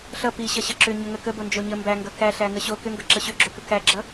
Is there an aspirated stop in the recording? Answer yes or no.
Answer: no